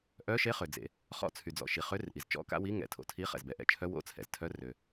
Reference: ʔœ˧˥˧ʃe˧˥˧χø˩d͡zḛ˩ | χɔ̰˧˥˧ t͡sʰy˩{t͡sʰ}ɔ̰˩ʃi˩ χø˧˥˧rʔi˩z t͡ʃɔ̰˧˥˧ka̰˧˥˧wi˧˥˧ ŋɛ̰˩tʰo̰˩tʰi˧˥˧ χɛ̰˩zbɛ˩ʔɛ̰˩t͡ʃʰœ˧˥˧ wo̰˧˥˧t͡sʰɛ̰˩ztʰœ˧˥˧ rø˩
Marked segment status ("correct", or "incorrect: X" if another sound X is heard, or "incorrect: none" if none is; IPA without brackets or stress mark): incorrect: d͡z